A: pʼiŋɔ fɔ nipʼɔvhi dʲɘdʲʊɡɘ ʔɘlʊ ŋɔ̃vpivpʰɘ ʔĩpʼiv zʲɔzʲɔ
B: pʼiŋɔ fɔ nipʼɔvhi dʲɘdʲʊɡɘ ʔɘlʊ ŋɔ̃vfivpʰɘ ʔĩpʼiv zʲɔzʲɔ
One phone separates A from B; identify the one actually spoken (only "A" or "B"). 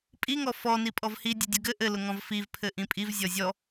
B